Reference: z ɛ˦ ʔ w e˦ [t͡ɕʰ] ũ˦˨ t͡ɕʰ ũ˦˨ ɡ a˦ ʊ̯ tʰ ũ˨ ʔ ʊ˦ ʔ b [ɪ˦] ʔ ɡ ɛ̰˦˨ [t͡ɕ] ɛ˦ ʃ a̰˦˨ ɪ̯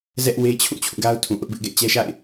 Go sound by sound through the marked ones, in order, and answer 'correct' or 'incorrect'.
correct, correct, correct

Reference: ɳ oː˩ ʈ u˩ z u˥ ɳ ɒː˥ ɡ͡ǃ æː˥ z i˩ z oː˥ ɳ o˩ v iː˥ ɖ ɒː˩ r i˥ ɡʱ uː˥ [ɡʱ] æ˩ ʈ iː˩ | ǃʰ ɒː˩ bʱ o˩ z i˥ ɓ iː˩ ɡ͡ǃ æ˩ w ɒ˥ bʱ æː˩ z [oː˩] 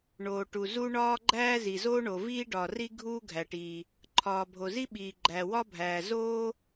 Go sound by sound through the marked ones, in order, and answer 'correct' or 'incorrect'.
correct, incorrect: oː˥

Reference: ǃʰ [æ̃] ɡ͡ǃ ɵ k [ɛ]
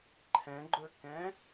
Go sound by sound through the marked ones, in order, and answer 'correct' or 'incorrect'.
incorrect: ɛ̃, incorrect: ɛ̃

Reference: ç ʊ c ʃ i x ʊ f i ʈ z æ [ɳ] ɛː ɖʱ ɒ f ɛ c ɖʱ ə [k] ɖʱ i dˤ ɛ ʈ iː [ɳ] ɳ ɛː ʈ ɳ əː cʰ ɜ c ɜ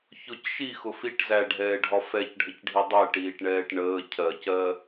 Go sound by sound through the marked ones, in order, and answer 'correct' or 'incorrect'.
incorrect: ɖʱ, incorrect: c, incorrect: ʈ

